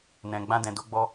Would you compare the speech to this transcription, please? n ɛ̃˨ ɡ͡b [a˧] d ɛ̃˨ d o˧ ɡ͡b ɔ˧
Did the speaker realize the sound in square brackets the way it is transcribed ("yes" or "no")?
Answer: no